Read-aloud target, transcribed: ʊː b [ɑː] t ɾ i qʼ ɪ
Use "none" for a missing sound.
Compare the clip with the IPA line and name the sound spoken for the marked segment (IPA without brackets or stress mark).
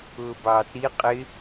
ɑː